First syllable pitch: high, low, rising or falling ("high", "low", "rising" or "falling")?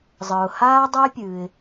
low